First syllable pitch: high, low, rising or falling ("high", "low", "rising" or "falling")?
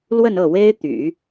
falling